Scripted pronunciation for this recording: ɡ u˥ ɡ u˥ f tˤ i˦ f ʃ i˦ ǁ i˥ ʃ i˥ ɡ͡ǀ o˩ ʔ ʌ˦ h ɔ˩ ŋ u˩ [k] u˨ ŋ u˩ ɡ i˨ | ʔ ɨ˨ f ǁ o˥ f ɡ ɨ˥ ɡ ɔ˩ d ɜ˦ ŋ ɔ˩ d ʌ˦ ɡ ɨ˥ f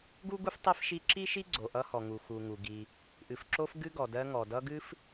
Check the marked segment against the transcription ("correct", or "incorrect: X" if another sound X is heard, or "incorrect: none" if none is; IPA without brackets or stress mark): incorrect: x